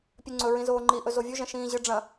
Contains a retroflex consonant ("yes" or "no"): yes